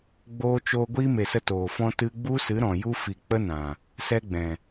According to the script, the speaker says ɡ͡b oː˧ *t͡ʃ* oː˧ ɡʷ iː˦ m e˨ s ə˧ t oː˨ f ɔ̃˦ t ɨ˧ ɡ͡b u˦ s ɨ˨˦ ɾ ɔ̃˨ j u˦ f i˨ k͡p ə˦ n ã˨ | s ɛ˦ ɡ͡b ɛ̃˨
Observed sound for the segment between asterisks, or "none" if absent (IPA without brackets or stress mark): t͡ʃ